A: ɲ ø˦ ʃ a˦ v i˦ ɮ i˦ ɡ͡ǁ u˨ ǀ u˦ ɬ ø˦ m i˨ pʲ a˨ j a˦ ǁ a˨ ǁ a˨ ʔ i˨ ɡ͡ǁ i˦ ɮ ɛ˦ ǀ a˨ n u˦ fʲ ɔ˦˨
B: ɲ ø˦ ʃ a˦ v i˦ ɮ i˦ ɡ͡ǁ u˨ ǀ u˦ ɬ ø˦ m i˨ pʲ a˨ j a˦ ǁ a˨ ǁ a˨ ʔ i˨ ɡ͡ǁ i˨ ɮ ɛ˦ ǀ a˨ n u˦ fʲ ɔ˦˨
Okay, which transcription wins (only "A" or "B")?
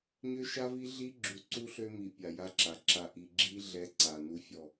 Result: A